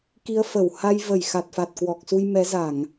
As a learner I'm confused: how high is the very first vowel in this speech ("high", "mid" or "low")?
high